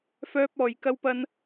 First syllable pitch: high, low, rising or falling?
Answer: high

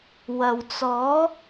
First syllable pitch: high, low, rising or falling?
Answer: low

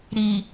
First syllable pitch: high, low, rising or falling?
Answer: low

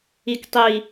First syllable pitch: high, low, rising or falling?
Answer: low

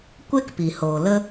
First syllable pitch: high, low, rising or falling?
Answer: high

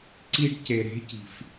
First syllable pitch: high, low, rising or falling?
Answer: high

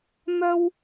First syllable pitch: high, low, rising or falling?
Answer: high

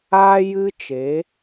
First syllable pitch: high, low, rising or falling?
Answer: high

